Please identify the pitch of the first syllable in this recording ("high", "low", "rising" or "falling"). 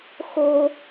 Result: high